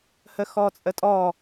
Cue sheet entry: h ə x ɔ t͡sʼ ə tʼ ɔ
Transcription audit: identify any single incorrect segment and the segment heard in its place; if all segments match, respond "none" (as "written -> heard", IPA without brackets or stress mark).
none